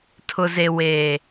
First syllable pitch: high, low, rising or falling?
low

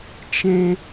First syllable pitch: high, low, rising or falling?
low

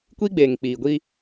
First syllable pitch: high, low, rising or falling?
high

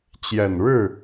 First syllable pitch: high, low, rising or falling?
low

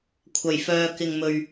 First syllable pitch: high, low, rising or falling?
low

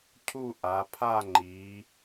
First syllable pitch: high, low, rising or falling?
falling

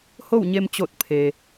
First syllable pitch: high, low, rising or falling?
falling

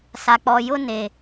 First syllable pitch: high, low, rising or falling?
low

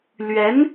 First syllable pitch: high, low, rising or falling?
rising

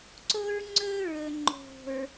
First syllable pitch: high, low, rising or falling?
high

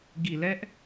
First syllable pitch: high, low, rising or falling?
low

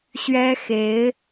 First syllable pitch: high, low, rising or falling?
high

